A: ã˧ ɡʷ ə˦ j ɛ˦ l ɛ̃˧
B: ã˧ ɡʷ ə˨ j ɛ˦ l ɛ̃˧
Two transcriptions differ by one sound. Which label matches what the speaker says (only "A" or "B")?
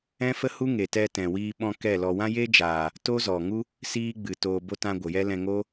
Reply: B